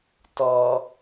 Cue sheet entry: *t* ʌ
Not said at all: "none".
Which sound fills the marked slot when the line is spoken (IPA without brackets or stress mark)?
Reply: t